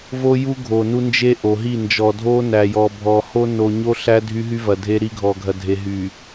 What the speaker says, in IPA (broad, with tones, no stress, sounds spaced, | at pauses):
v o˦ j u˦ ɡʱ o˨ n u˦ n d͡ʒ e˦ ʔ o˨ ɦ i˦˨ n d͡ʒ ɔ˨ dʱ o˦ n æ˨ j ɔ˨ bʱ ɔ˨ h o˦ n o˨ ɲ o˦ ɬ æ˦ dʱ y˦ ɦ y˦ v ɐ˨ dʱ e˦ ɾ i˦ ɡʱ ɔ˨ ɡʱ ɐ˨ dʱ e˨ ɦ y˨